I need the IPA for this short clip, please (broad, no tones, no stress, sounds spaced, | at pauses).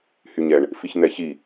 h y ɲ ɛ ɳ | f i ç n̪ ɛ ç i